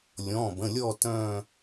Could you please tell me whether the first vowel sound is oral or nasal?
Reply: nasal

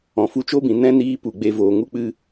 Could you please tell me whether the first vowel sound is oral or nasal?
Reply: nasal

